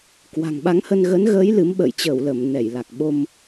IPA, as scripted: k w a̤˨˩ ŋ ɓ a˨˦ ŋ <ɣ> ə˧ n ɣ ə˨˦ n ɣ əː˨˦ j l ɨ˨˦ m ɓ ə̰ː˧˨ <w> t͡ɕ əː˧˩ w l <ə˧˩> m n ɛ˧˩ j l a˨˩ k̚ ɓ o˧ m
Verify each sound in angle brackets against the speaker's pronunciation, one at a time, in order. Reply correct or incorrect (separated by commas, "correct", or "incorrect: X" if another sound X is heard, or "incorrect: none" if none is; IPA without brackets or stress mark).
incorrect: h, incorrect: j, correct